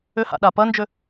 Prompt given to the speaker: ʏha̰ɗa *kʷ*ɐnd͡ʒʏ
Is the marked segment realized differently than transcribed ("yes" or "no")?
yes